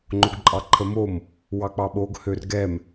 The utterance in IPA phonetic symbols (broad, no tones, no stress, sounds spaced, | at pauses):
ŋ͡ǃ o ɡ ǃʼ ɑ ǃʰ ə m o m | w ɑ k͡p ɑ ɓ o ɡ h ø r ɡ ɛ m